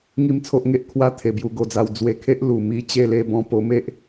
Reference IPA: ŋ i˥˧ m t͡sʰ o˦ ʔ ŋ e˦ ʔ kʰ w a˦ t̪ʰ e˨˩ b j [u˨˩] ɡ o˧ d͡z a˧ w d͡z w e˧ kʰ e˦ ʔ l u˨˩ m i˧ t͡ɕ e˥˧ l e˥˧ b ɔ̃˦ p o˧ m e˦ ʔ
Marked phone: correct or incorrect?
incorrect